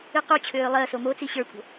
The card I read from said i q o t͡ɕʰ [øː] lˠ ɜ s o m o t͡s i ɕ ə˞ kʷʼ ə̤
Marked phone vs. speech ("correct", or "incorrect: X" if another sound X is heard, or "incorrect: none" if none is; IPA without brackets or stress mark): correct